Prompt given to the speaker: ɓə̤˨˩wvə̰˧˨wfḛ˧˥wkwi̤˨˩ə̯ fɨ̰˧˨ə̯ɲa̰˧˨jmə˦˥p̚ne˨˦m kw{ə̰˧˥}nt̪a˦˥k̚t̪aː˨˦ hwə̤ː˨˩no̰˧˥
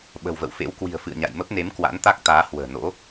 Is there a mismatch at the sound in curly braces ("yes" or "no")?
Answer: yes